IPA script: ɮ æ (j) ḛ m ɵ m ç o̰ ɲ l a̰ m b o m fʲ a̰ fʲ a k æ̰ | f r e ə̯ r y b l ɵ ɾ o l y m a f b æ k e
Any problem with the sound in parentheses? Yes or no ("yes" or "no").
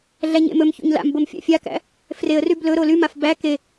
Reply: yes